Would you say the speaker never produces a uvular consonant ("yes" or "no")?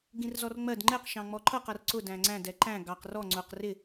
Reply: no